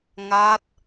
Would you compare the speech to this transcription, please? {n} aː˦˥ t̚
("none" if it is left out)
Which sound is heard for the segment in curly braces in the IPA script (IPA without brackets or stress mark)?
ŋ